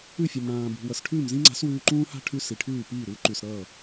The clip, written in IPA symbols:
ʉ˥˩fʲʌ˩mɽãː˩bṳ˩ wʌ˩sʈʰʉː˥˩mzĩ˥ŋ͡ǀa̤˩˥s wʉː˧ǃũː˥ha̤˥ ʈʰʉ˧si˩ ʈʰʉː˥˩piː˥˩ɾu˩˥ ǃʉ˩sɾʌː˥˩

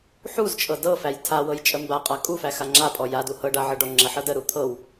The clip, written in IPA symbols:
ħuzt͡ʃʼɤ dɤfæj tʰawɤj t͡ʃʼəmbaqʼa kʼufæ xaŋ͡ǁapʼɔ jadu hɤɖa ʕɤɖɔŋ͡ǁəħɤ dəɾu t̪ʰɤw

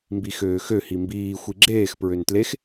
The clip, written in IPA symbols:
mbixøːxø himbiː xʷiɡ͡ǁeːx pɹøntlex

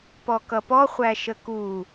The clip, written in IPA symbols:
pɔkʌpɔ χʷæʃəku

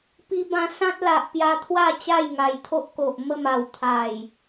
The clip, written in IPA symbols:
pi˧bã˧ sã˦t̚la˨ʔpja˧t̪ʰwa˥˧ t͡ɕa˥˧jŋa˨˩jt̪ʰo˦ʔ ko˨ʔmə˥˧m a˨˩wt̪ʰa˨˩j

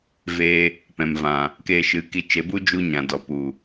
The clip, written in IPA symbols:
ve˧ | pɛ̃˨mvã˨ | keː˧ʃɨ˨˦ki˧ t͡ʃe˨˦bu˦ d͡ʒu˦ɲã˨dɔ˨pu˨

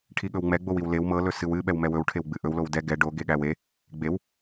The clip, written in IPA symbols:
ʈʰiɠɵwŋ͡mɛ ɡ͡bowiwlew mɤ lɵsɨwɨ ɓɛwmɛwɵw ʈʰewɡ͡bɨʔɵw lowdɛ ɡɛ ɖo ɡeɠæwe | ɡ͡bew

